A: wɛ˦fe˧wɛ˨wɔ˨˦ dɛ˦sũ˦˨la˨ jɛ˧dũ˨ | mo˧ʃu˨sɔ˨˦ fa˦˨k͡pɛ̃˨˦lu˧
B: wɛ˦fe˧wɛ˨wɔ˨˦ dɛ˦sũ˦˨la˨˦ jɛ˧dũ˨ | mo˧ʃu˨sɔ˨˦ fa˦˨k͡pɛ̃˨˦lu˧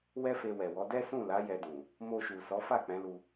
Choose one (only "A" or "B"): B